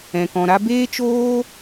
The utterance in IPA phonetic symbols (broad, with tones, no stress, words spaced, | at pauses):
ɛ̃˨kɔ̃˨ɾa˦ beː˦t͡ʃoː˦